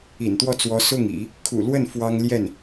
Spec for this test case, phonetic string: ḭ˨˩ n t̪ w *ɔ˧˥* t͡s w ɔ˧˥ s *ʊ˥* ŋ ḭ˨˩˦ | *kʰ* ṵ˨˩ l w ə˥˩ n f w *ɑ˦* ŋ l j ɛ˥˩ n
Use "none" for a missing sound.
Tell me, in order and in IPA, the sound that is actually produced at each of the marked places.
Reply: ɔ˥˩, ʊ˥˩, kʰ, ɑ˥

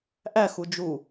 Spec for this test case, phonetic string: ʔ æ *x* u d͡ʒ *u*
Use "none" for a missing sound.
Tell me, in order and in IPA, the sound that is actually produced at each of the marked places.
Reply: x, u

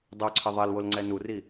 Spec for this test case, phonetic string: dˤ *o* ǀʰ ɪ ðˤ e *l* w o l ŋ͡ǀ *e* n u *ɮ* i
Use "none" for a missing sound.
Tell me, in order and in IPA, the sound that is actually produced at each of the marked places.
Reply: o, l, ɛ, r

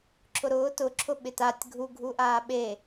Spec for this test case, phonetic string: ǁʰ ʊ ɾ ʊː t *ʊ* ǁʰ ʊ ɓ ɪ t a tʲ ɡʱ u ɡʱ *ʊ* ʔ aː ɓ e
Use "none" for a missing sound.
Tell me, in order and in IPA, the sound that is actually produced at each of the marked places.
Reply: ʊ, u

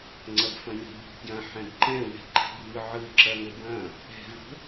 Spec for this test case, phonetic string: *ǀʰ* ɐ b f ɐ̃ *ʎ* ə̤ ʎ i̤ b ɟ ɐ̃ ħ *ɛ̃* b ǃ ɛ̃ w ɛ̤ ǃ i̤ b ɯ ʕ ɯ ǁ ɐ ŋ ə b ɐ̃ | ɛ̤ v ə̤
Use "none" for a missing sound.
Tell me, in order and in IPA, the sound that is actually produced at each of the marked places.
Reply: ŋ͡ǀ, ɲ, ɛ̃

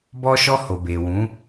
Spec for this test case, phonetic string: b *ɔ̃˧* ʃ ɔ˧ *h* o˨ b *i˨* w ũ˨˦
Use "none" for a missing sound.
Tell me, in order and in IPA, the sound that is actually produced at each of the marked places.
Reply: ɔ˧, h, e˨

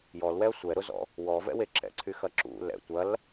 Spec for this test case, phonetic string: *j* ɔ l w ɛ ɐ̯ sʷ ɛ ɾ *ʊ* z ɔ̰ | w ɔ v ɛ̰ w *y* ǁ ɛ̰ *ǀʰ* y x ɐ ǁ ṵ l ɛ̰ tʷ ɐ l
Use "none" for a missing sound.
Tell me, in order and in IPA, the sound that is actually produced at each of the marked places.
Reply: j, ʊ, e, ǀʰ

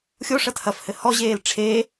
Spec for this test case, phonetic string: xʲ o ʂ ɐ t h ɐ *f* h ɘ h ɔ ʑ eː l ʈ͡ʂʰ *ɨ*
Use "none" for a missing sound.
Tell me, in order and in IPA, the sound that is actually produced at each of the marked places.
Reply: f, e

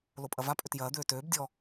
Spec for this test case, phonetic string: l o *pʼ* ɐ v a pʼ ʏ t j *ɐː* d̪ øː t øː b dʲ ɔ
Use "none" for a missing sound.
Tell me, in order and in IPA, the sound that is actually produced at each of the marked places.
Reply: pʼ, ɐː

